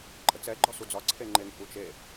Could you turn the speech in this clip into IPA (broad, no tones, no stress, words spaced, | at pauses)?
ǃʼət͡sɛ ɡ͡ǃɒsud͡zɒ ǀʰeŋ͡ǃeŋ ʔut͡ʃe